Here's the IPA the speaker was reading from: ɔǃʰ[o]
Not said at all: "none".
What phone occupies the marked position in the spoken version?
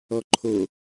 o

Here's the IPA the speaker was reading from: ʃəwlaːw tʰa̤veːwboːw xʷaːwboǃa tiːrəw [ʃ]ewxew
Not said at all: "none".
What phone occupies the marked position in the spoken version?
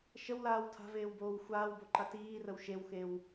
ʃ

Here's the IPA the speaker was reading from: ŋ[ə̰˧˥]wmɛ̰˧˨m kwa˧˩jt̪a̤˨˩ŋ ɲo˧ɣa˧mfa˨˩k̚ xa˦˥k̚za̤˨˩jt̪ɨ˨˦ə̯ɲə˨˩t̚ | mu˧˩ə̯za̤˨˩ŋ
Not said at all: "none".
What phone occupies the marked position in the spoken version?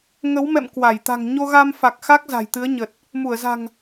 ə˨˦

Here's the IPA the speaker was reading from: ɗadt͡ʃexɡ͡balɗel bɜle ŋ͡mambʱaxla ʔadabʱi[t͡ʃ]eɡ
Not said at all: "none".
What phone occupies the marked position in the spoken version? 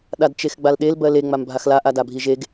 ʒ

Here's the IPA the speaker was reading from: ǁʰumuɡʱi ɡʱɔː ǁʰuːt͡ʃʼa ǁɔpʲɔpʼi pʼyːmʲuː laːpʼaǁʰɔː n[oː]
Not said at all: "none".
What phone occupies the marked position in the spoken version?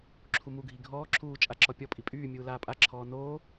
oː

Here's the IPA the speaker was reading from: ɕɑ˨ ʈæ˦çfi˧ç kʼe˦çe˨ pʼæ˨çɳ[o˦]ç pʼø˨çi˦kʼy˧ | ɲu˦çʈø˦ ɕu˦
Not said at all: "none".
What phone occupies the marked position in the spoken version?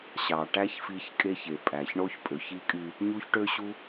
o˦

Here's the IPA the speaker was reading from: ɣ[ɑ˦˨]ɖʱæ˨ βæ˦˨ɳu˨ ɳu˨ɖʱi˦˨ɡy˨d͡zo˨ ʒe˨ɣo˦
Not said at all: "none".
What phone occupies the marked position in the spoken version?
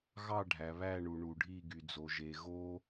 ɑ˦˨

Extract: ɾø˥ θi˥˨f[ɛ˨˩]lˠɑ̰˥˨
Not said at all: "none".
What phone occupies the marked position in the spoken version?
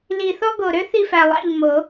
æ˨˩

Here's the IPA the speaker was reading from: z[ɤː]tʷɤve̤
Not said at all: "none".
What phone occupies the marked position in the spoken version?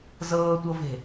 ɤː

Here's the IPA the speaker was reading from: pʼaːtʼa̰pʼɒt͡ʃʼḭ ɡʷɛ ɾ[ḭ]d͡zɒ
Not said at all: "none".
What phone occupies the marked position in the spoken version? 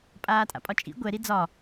i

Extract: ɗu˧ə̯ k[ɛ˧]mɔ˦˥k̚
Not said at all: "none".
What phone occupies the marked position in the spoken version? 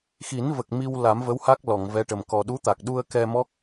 ɛ˧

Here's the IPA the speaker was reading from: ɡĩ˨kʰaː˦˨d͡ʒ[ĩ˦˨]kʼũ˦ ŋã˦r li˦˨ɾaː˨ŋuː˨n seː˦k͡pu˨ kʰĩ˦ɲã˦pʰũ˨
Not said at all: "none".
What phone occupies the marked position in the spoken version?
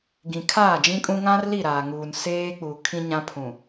ĩ˦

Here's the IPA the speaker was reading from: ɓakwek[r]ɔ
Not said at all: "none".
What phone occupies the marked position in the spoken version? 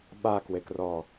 r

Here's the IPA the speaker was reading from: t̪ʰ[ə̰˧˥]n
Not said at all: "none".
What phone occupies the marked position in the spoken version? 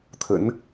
ə̰˧˥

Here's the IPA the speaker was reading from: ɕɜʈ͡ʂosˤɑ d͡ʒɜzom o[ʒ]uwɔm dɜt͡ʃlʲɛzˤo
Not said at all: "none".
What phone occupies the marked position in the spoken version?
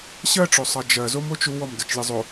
t͡ʃ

